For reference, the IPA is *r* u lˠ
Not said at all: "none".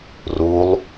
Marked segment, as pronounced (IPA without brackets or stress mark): r